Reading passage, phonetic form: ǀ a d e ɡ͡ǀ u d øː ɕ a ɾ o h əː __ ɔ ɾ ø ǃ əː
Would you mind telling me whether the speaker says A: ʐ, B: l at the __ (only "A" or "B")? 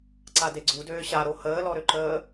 B